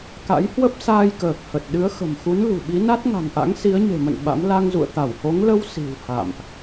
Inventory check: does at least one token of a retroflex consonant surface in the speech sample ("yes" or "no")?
no